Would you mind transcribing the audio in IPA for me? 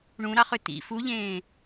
ɳũɾɑχø tḭ fuʎẽː

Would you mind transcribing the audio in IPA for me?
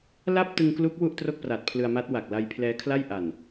la˥˩p̚ tɯ˧ŋklu˦˥k̚ wu˥˩ʔtro˥˩k̚pra˨˩t̚ pʰlɯ˧a̯ma˦˥t̚wa˨˩k̚ la˧jpʰlɛː˦˥kʰla˥˩j ʔa˨˩n

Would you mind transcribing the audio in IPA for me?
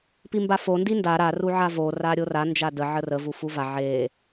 pimbafo ndinda ɾa ruʕavo raɾʲora nd͡ʒadə ʕərə vufuva ʕe

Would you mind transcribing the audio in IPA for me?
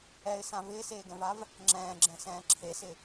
ɛɪ̯sã vɪːseːɡɛ̃vav | ŋ͡ǁɛ̃ːɡ͡ǁɛ̃sɛ̃ː ǁʰesɪ

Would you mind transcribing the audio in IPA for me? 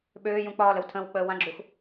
ɓøː jũk͡pɒːləw tʰə̃w k͡pəːwãɡ͡ǁux

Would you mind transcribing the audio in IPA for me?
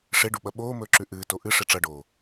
ʂeɖuɓɐ ɓoːmɵːǁʉ ʔɨːto ʔɨ ʂeʈ͡ʂɐɖoː

